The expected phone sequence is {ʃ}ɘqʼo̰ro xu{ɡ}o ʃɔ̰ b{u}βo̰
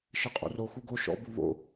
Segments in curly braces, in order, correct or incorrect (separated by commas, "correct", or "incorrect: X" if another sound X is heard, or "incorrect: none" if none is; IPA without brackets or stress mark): correct, correct, correct